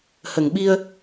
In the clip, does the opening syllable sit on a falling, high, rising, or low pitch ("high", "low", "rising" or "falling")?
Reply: low